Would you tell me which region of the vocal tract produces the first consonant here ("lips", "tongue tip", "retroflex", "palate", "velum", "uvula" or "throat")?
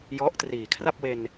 palate